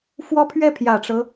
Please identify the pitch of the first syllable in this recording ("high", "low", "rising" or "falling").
high